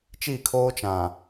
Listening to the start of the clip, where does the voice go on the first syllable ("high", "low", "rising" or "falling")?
falling